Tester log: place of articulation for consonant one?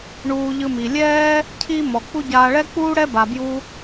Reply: retroflex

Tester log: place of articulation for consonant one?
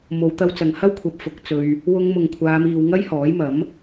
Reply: labial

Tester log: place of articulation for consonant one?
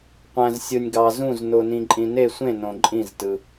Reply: uvular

